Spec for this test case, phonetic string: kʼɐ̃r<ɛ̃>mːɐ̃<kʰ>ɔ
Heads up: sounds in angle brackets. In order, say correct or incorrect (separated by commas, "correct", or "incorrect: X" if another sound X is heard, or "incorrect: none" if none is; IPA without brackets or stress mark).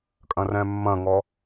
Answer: correct, incorrect: ŋ